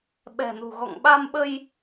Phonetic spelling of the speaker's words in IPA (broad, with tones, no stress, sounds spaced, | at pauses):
ɓ ɛ̤˨˩ n ṳ˨˩ ɣ ɔ̰˧˨ ŋ ɓ a˧ m ɓ ə˧ j